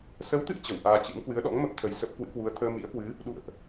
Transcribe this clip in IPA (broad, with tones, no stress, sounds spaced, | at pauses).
s ə˨˦ w t̪ ɨ̰˧˨ ə̯ t͡ɕ ə˧˩ w ʔ aː˧ t͡ɕ ɨ̰˧˥ m k w ɨ˨˦ ə̯ ɗ ɔ̰˧˥ ŋ m ə˦˥ p̚ t̪ʰ ə˨˩ j s ə˦˥ p̚ k w ɨ̰˧˥ k w u˨˦ ə̯ t̪ʰ əː˧ m ḭ˧˥ ə̯ k w ɨ˨˦ | ɗ ṵ˧˨ ə̯ ʔ